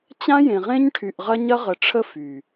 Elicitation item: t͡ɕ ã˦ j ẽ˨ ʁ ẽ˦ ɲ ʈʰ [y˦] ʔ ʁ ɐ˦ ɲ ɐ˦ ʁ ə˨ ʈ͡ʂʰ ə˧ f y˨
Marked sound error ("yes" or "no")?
yes